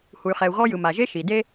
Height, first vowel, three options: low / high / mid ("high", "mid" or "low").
high